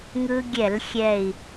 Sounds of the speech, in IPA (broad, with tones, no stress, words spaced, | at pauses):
ŋɯ˧ɡʲɛ˧˩˧l xʲɛ˨˩i̯